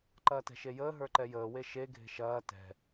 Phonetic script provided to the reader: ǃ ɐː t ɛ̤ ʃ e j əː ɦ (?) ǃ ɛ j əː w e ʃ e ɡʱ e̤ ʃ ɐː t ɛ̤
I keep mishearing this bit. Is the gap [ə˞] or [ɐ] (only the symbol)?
ə˞